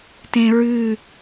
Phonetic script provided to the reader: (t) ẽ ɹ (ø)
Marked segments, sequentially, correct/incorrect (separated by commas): correct, incorrect